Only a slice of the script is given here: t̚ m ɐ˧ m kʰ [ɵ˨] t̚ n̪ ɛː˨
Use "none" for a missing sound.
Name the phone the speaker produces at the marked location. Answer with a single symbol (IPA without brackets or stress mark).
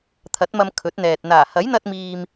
ɵ˨˥